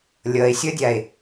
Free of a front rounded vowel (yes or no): yes